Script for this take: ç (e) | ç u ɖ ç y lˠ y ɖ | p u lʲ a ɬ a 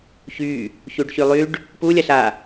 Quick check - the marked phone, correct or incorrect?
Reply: incorrect